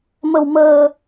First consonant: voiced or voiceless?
voiced